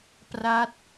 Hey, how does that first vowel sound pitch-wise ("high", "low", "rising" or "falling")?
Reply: falling